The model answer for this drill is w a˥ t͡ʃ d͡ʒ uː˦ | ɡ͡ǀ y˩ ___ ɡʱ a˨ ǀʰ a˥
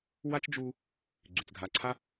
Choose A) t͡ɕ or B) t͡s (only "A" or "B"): B